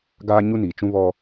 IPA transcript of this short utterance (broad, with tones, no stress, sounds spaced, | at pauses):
ɡ aː˦ ɲ u˦ n i˨ t͡ʃ ũ˦ β ɔ˦